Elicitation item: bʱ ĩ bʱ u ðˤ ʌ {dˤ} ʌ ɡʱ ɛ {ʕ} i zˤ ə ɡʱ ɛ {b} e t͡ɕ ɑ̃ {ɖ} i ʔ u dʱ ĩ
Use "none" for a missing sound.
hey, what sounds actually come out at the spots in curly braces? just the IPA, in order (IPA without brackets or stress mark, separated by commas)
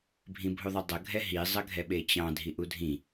dˤ, ɦ, ɓ, dʱ